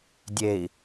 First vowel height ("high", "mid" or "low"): mid